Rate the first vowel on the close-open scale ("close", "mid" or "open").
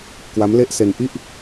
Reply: open